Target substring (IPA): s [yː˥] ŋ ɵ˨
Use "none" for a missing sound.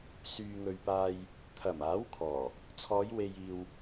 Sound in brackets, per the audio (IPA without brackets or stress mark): yː˨